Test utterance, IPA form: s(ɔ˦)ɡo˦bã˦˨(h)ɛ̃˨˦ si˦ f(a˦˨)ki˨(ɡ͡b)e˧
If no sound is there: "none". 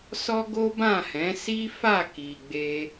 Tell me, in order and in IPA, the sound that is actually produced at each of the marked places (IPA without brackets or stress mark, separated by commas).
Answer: ɔ˦, h, a˦˨, ɡ͡b